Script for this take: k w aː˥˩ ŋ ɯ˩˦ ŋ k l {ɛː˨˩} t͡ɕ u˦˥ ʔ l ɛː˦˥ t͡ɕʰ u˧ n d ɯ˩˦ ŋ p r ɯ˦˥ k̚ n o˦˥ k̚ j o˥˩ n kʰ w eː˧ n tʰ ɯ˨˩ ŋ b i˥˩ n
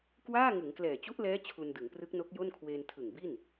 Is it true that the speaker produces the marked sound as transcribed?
yes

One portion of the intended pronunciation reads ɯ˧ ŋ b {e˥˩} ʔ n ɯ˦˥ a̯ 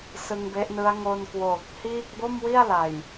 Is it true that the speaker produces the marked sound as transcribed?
no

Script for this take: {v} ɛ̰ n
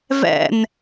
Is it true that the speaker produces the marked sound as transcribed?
yes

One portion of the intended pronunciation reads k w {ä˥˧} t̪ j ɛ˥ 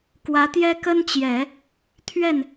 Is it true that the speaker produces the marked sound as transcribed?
no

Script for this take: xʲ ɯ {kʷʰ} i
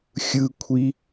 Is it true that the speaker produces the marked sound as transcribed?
yes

